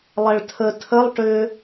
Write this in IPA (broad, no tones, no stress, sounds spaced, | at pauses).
lˠ ɛ ɭ tʰ ə tʰ ə lˠ ʈ ʏ